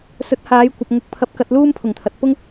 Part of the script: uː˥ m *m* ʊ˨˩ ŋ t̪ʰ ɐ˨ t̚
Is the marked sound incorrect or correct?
incorrect